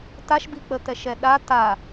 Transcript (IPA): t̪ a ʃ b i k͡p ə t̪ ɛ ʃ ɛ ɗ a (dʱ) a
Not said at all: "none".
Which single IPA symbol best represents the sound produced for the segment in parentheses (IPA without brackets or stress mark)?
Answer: t̪